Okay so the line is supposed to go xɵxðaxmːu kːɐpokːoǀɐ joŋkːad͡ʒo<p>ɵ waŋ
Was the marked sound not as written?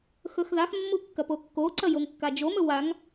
yes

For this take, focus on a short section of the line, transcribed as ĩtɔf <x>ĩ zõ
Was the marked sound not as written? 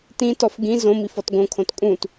yes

